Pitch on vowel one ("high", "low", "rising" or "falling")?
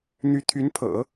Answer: rising